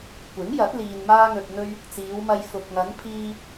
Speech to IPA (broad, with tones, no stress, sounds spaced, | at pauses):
kʷ ɪ˨˥ ŋ j ɐ˨˥ t̚ l iː˨ n m aː˧ ŋ ɵ˨ t̚ n̪ ɵ˧ ɥ | t͡s iː˨˧ w m ɐ˧ j f ʊ˨ k̚ ŋ ɐ˨˧ n pʰ iː˧